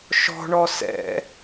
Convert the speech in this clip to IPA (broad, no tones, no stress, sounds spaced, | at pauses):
ʃ ɔ̤ ɳ ɔ s ɛ̰